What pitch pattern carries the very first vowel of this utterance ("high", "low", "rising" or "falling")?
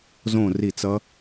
falling